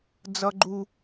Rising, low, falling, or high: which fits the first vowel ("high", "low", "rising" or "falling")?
high